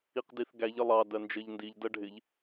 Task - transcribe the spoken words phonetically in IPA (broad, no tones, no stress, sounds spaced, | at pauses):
i q d i θ ɡ æ ʎ ə lˠ ɑ d ɜ n d͡ʒ ɜ ʎ n d i ʎ d ɜ ɖʱ ɪ ʎ